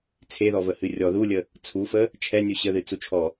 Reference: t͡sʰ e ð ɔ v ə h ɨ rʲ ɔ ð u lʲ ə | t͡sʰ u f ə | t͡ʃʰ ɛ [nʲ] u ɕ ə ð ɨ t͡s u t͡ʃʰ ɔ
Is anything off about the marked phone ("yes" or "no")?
no